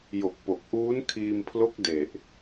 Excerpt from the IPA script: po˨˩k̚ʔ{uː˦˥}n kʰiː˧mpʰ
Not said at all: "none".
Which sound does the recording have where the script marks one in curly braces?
uː˦˥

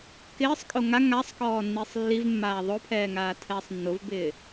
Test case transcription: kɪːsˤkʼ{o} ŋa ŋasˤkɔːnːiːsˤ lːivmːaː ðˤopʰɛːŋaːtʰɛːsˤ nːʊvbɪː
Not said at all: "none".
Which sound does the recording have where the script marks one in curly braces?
o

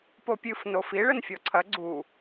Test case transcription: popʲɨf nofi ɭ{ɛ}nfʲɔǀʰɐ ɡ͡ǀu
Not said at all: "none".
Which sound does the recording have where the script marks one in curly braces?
ɘ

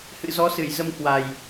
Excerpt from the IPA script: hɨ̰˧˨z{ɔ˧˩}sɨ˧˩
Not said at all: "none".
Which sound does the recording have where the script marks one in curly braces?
ɔ˨˦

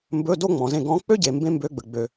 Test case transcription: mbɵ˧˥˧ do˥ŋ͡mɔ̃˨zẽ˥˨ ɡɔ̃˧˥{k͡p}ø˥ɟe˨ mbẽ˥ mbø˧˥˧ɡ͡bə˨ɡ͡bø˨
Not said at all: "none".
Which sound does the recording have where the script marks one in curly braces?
k͡p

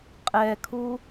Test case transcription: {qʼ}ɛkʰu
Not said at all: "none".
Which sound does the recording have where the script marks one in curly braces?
qʼ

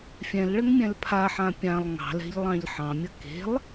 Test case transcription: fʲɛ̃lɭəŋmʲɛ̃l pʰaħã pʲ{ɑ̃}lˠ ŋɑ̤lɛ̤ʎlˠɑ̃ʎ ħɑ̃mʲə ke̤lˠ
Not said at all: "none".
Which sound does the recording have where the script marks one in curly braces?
ã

